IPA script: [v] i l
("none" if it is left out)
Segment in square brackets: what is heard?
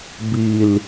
b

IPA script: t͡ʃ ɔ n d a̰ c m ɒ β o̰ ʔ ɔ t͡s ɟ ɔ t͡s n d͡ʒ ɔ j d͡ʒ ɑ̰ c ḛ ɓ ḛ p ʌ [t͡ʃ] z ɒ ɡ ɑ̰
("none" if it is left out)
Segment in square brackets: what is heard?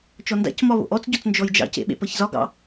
ç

